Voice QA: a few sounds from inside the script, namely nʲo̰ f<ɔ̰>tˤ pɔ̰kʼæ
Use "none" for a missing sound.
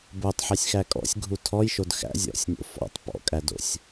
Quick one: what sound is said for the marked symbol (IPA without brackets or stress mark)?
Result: ɔ̰